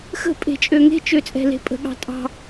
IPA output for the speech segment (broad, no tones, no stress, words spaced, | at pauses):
xə̤ pʼe̤t͡ʃʼøŋe̤ t͡ʃøt͡sʼɛ̤le̤pʼə̤ ɠɑ̤tʼɑ̤